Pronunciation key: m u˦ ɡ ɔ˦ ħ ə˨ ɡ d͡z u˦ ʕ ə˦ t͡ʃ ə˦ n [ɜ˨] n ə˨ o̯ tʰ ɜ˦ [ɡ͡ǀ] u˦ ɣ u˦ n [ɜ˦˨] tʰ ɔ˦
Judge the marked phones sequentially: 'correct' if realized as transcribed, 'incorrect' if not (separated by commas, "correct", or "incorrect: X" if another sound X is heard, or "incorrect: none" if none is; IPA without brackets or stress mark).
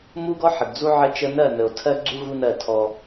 incorrect: ɜ˦˨, correct, correct